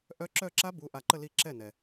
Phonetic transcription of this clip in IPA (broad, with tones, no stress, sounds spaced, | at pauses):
ʔ œ˦˥ ǁ œ˥˧ ǁ a˦˥ b u˧˥˧ ʔ a˥˩ ǃ ə˥˧ l i˥˩ ǁ ɛ˥˩ n ɛ˩